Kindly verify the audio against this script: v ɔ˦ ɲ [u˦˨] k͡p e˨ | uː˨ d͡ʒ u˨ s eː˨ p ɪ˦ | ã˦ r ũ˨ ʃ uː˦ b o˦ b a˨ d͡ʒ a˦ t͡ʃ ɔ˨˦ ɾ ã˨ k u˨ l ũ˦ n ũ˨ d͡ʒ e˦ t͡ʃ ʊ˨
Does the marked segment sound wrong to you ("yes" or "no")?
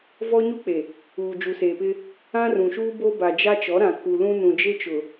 yes